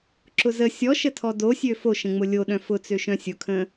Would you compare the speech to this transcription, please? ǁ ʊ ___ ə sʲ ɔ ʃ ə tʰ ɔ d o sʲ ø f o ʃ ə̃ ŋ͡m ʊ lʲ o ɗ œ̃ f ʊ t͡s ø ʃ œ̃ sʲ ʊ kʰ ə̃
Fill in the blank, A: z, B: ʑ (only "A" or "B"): A